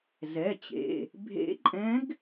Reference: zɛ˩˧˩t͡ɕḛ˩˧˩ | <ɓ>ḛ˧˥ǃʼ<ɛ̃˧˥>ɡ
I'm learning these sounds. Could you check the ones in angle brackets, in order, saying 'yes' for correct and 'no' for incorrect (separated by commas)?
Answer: no, yes